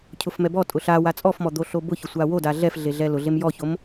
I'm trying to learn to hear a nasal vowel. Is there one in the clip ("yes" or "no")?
no